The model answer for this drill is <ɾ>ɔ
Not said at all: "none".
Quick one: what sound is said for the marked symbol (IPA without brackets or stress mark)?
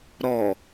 ɾ